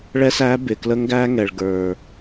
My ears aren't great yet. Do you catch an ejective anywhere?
no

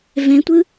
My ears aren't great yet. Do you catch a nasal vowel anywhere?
yes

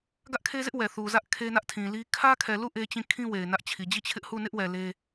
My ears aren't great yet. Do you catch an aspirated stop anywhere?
yes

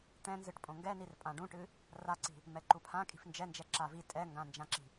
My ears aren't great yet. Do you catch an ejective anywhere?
yes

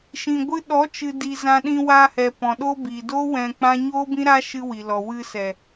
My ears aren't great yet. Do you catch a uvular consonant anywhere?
no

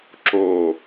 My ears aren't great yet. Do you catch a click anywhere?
yes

